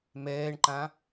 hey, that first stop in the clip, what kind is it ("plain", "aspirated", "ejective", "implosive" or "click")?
click